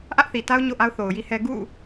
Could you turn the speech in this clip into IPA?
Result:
ʔ ä˦ ʔ θ i˨ t a˦ ʊ̯ ɲ o̰˦˨ ʔ a˦ ʊ̯ θ o˨ ʊ̯ j i˦ h ɛ˦ ɡ ṵ˦˨

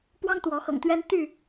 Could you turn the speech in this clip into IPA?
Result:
p w ɑ˦ ŋ t̪ w ɔ˨˦ x ɤ̰˨˩ ŋ t̪ ɥ ɛ˦ n t̪ y˥˨

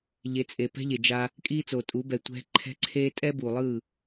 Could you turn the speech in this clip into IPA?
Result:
ʎ e˨˦ t͡sʼ e˨ p ɛ̤˦ ʎ e˨ d͡ʒ a˦ | kʼ iː˦ t͡s o˨ tʼ u˨˦ b ɛ˨ tʷ ɛ̤˦ ǃʰ ɛ̤˦ ǀʰ eː˦ tʼ ɛ˦ b uː˨ lˠ ɯː˦˨

